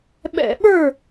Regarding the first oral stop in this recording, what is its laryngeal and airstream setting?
implosive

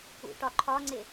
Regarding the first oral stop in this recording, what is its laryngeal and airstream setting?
plain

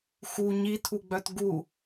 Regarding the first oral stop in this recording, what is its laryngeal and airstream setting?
aspirated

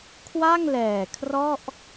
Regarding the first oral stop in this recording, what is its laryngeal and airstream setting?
aspirated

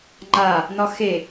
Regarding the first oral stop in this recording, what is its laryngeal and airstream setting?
click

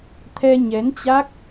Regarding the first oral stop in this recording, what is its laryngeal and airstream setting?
aspirated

